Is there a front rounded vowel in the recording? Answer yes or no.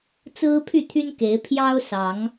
yes